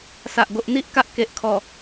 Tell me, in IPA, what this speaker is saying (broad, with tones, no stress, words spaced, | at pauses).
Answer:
sa˨ʔ ɡo˨ʔn̪i˦ʔ ka˦ʔke˨ʔkʰɔ˨˩